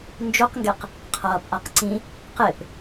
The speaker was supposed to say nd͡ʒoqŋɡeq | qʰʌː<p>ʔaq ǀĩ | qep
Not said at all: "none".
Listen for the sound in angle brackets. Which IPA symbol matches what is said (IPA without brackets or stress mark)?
p